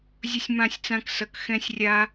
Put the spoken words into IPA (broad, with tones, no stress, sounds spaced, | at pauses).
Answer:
zʲ ʊ˦ sʲ m ã˦˨ sʲ t͡s ã˦ k s ʌ˧ k x ɛ̃˦ sʲ rʲ a˦